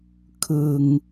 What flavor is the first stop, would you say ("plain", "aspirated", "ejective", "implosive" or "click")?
aspirated